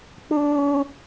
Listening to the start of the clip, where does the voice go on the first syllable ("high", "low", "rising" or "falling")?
high